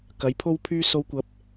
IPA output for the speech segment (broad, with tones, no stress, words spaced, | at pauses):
kɐ˨˥jpʰo˥wpʰyː˥ so˧wkʷɐ˨˥p̚